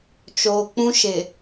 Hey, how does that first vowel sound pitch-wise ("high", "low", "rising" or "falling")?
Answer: low